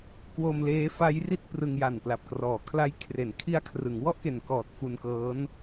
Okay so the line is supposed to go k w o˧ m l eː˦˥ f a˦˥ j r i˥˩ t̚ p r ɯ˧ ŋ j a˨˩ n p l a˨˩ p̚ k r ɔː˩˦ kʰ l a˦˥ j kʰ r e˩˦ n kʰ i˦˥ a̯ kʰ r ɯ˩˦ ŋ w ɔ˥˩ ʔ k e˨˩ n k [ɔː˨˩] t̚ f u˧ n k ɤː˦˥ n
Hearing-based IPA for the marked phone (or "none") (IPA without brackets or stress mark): ɔː˨˩